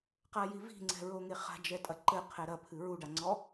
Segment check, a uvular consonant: present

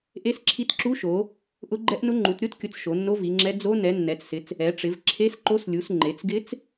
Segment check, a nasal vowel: absent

